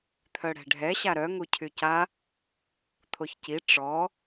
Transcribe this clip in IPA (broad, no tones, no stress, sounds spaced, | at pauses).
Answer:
t̪ʰ œ ɽ ɛ̤ ɖʱ ɛ ɕ a ɾ œ ŋ u cʰ y c a | t̪ʰ o ç c i ʈ͡ʂ ɔ